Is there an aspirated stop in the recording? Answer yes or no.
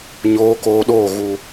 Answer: no